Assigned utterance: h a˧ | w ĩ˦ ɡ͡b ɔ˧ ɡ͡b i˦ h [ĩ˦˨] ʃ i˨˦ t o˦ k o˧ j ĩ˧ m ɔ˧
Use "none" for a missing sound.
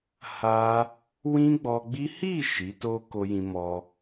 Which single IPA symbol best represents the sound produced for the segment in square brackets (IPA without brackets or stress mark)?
i˦˨